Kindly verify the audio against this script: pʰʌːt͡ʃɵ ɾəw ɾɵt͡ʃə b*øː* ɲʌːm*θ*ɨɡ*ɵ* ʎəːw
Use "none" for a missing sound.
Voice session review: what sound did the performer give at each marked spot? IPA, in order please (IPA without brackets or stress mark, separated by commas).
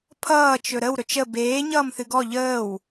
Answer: eː, θ, ɔ